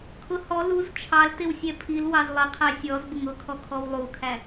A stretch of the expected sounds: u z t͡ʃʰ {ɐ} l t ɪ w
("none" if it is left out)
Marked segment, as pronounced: ɑ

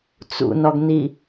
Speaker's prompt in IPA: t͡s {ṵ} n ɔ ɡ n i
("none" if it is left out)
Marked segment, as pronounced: ṵ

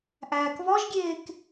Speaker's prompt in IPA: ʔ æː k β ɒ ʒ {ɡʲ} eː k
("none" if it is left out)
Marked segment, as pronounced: ɡʲ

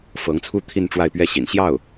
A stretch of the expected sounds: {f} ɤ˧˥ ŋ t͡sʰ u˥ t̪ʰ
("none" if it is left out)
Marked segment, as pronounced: f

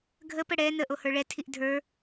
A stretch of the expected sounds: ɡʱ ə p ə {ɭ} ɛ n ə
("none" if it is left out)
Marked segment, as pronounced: ɽ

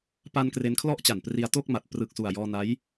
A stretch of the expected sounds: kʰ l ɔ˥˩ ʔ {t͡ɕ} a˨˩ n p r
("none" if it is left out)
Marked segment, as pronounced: t͡ɕ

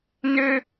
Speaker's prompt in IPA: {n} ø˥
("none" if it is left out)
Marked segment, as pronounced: n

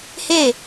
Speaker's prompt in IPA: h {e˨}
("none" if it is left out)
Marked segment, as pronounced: e˦˨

